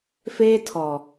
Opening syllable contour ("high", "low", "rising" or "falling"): high